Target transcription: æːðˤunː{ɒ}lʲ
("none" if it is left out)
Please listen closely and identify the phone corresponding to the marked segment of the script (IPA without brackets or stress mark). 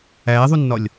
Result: ɒ